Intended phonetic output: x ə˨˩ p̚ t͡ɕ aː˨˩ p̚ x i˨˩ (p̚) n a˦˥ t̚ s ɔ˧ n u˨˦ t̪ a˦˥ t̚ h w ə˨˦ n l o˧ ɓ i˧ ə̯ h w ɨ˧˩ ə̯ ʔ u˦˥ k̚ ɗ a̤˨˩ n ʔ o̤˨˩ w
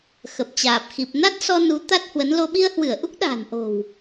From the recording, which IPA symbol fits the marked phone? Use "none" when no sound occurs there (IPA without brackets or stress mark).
p̚